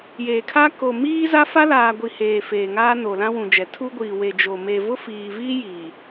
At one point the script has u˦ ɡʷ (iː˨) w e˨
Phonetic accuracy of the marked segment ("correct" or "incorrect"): correct